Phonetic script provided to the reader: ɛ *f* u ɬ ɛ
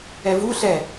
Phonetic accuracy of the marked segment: incorrect: v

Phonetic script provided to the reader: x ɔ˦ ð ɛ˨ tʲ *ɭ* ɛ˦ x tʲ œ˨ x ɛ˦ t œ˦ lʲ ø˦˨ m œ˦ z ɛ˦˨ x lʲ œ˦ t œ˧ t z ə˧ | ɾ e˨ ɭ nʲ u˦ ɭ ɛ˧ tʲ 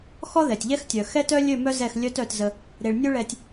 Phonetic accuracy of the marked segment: incorrect: ʎ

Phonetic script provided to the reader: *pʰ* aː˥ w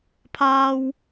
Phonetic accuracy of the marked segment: correct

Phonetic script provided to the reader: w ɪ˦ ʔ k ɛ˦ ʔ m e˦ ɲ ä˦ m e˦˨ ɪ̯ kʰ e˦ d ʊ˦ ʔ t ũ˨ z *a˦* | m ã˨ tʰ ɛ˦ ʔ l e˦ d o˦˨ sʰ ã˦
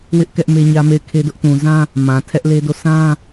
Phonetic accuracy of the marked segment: incorrect: ã˦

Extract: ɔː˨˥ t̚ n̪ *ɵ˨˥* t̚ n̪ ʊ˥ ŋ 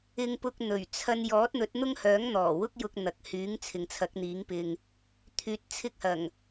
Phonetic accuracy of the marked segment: correct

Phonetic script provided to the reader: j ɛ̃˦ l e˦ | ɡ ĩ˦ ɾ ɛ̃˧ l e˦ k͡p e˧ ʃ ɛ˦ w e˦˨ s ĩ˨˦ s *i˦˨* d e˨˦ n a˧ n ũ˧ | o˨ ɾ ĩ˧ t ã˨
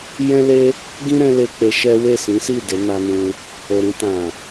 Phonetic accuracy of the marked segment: correct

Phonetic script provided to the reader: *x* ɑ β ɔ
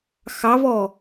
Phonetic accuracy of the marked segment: correct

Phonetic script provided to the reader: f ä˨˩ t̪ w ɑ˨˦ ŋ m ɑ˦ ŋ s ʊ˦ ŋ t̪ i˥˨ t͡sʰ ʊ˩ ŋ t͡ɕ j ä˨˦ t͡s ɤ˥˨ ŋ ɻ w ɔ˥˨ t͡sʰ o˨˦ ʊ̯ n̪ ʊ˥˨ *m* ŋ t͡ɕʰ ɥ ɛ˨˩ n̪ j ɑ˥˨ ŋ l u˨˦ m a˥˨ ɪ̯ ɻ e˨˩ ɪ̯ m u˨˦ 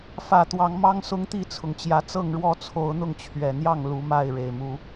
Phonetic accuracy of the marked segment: incorrect: none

